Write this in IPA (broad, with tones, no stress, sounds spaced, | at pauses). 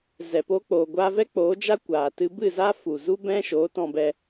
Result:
z ɛ˨ p o˧ k͡p oː˨ ɡʷ aː˧ v ɛ˦ k͡p oː˨˦ d͡ʒ a˦ kʷ aː˨ t ɨ˧ b ɨ˦˨ z a˦ f u˨ z u˦ b ɛ̃˦ ʃ oː˨˦ t ɔ̃˧ b ɛ˧